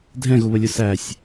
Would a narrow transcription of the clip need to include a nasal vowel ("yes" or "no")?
yes